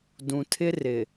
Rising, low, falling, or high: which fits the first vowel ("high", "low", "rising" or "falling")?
low